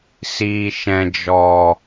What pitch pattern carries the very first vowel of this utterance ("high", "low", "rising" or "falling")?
low